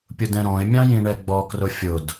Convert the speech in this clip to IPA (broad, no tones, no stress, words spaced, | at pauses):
pʲʊdɛ̃ɾɔ̃ɪ̯mʲɑ̃ jĩɳɛɡ͡bɔkrʊ fʲʊd